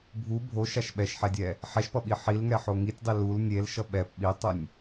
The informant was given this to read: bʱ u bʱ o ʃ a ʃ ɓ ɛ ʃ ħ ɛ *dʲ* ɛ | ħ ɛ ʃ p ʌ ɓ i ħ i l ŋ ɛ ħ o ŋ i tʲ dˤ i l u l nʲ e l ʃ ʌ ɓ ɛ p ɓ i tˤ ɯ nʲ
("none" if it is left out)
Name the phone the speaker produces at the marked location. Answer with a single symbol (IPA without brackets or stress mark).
dʲ